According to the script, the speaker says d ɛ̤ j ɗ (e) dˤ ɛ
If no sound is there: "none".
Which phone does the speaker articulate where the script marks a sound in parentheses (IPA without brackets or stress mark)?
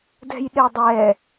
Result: e